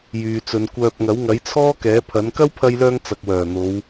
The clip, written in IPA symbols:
jyː˨t͡sɵ˨˧nkʷœː˧p̚ ŋɐ˨˥wŋɐ˨˥jt͡sʰɔː˥ kɛː˨˥pʰɐ˨˥n kɐ˥wpʰɐ˧jlœː˧ŋ t͡sɐ˨k̚wœː˨˩n̪o˨˧w

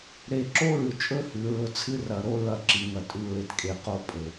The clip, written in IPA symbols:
ɾe˨ǁo˦ɹʉ˨t͡ʃʼɵ˦ hʉ˨ɹɵ˦˨ t͡sʰɨ˦rɐ˨ ɾo˦ ɹɐ˦˨ǁi˨˦ ŋɐ˨ tʼʉ˨ ɹe˨tkʼe˨ qo˦pʼɵ˨

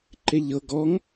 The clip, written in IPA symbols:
ǃeʎɤ ɡɔŋ

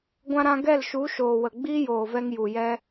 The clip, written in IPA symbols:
ɡʷã˧ɾã˧ ɡɛ˦˨lʃu˨˦ ʃoː˨wə˨ ɡ͡biː˦joː˨vɛ˧ŋ ju˨jɛ˦

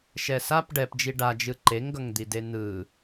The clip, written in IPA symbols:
ʃɛsap ɖɛpd͡ʒi ɖad͡ʒɯ ǃeŋɡʌŋd̪ide n̪ɯ

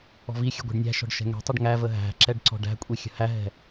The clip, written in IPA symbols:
ɔ̤vixʲə̤ ɡʷɛ̤ɖnʲæ̤ʃɔ̤ɖ ʃɛ̤ŋɛ̤tˤɛɖ ŋævə ɦæ̤ǁɛɖ ǀɔ̤ɖæ̤kʷʼi xʲə̤hæɦɛ̤

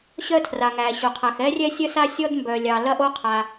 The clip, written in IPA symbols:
ɕœ˥tʰra˩ ŋæ˩ɕo˩qʰæ˩x ɛ˥rʲɛ˥sʲœ˥s a˥sʲɔ˥d mbœ˩lʲɑ˩ lɐ˥ʔo˥qʰa˩

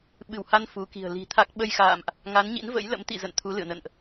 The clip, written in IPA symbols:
ɓɨ˧˩wha˧n fu˨˦ki̤˨˩ə̯ li̤˨˩t̪ʰa˦˥k̚ ɓə˧jxa̰ː˧˨mʔ | ŋa˨˦nɲḭ˧˥nvə̰˧˥j lə̰˧˥mt̪ḭ˧˨ zə̰˧˨n t̪ʰu˨˦lɨ̰˧˨ə̯nə̰˧˨nʔ

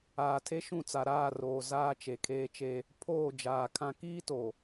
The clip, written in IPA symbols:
aː˨tʰe˦ ʃũ˦˨t͡sa˨ɾaː˦˨roː˨ zaː˦t͡ʃe˨kʰeː˦t͡ʃe˦ | pʰoː˦˨ d͡ʒaː˨kʰã˦ kiː˦to˨

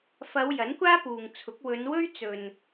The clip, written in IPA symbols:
fɐ˨˧w jɐ˨˥nkʷaː˥puː˨ŋt͡sʰʊ˨˥k̚ wɵ˨˧nwɵ˥ɥ t͡sɵ˨n

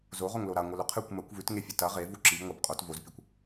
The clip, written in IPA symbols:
zoʁoŋlo ɾaŋʷɨlɵ qʰɨkʷ mɐkʷ vʉtŋefʲɵ tɐ ʁevu ǁib ŋʷɐb qʼot vozpʲukʷ

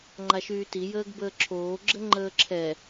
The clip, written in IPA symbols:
ŋ͡ǃaʃyːti jəːɡbəːǁʰoː ɡ͡ǁəŋ͡ǃəːǁʰɛ

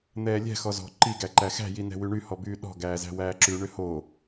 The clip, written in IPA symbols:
n̪ɛːlʲɛ̤ xɔzɔ̤ ǃi ɡæǃæxæ̤ jinɛ̤wyɳy hɔbyːɗɔ̤ ɡæːzæ̤wæːǁʉ ɳʏho

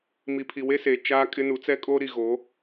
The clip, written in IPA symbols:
mi˨pʰi˨we˦seː˨ t͡ʃaː˦kʼɪ˦ nu˨˦t͡sɛ˦kʼoː˦ɾi˨ ɣo˨˦

